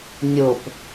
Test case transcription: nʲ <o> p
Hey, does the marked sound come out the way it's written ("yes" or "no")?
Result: yes